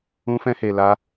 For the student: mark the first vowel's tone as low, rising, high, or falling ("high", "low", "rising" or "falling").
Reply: high